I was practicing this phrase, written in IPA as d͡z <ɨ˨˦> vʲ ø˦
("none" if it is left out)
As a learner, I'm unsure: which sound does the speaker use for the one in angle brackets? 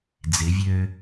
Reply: ɪ˨˦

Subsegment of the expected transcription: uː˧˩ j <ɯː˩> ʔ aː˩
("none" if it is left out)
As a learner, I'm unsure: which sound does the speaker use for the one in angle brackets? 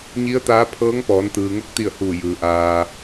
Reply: ɯː˩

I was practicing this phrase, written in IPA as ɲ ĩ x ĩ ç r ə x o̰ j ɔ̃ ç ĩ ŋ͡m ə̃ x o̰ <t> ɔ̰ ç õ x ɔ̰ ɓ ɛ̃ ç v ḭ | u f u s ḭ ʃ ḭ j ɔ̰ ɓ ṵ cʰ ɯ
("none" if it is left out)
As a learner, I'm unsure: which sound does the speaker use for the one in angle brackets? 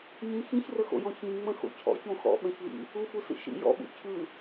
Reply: cʰ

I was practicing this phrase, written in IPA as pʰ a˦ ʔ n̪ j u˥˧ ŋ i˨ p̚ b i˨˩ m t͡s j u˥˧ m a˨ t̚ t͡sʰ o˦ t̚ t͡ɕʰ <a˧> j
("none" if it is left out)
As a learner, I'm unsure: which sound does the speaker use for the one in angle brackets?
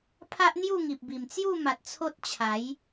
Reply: a˨˦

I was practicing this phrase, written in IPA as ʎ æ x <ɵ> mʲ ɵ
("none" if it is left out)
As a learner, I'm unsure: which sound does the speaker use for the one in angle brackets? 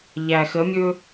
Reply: ə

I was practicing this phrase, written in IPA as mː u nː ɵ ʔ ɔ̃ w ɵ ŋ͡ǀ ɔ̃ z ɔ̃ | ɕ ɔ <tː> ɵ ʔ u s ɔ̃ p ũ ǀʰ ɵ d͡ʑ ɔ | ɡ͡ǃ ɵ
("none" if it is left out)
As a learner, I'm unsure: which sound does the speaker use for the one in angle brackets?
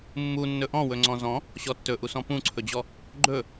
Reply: tː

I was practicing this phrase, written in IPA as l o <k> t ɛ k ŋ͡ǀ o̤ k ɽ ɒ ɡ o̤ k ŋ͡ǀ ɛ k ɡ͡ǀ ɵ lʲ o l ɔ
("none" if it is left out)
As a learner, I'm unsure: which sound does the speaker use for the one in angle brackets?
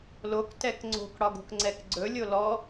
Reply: k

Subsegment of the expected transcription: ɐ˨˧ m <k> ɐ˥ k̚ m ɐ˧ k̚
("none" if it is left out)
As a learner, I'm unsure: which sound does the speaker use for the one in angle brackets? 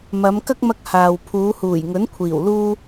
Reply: k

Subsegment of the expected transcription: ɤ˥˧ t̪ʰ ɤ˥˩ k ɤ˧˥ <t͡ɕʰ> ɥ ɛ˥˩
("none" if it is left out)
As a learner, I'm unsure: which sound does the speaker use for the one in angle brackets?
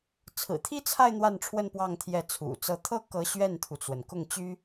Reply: ɕ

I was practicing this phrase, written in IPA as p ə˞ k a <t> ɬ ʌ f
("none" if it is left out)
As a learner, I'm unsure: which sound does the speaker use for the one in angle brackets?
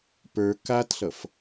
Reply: t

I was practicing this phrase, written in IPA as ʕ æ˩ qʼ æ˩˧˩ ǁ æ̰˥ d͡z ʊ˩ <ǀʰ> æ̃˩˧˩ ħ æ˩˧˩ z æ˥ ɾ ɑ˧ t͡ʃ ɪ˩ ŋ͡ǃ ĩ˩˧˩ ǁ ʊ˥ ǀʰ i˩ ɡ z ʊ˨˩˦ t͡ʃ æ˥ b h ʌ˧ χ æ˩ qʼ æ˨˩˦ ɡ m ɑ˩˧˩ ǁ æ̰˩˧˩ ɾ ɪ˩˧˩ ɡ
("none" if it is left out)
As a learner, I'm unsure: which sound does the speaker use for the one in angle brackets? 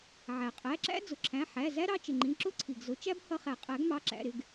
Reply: ǁʰ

